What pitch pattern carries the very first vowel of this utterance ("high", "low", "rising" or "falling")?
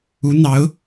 rising